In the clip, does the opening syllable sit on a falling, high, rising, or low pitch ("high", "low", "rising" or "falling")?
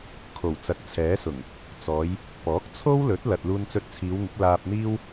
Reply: low